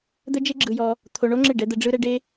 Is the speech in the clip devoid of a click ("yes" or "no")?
no